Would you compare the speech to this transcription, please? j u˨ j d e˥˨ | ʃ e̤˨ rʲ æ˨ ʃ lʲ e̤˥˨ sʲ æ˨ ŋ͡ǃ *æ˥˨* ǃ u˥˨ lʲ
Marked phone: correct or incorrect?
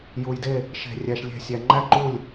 correct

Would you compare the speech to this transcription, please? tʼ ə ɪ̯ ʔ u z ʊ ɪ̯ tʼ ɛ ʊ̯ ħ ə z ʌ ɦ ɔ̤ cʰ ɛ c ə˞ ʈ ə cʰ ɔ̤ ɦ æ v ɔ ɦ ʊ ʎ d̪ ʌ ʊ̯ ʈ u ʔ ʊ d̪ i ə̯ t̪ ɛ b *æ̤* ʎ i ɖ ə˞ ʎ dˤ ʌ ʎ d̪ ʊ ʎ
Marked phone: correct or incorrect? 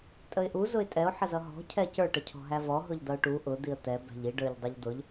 correct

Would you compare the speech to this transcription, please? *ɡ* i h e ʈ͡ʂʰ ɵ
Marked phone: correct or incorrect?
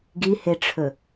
correct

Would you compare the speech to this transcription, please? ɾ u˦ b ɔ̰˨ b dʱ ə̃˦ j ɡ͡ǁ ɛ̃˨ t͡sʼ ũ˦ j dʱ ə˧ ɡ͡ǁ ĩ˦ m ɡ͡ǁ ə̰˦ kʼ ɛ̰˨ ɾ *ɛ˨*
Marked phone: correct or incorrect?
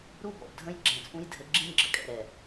correct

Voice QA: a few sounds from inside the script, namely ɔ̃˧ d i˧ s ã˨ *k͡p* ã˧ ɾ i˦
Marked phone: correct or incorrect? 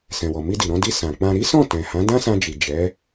correct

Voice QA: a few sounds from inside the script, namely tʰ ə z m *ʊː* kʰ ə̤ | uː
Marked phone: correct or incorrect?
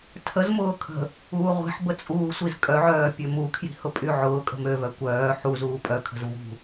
correct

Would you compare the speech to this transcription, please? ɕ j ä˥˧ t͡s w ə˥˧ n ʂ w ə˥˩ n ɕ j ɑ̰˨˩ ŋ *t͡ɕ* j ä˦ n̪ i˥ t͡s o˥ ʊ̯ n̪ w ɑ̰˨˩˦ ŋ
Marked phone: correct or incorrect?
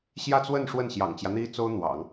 correct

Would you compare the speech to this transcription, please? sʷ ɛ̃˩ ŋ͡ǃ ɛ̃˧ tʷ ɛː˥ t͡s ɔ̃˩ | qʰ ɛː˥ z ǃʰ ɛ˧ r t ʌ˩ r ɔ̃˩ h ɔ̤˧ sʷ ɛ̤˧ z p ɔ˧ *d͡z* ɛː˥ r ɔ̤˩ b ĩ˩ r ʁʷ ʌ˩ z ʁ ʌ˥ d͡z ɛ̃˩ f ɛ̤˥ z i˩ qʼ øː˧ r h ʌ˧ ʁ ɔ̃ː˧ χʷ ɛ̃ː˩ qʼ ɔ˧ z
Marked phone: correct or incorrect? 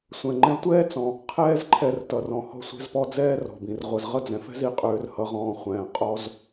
correct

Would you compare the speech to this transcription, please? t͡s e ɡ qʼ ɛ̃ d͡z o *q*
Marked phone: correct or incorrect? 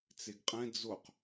correct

